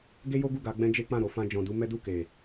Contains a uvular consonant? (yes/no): no